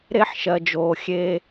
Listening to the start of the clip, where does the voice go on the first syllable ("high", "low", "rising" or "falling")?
high